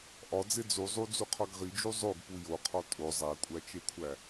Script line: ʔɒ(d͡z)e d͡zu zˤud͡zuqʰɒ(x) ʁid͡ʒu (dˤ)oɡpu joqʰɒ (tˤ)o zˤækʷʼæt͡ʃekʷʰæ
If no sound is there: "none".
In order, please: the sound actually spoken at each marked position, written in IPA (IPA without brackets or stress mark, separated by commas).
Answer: d͡z, ɡ, zˤ, tʼ